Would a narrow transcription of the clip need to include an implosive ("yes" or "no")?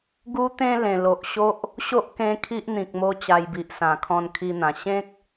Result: no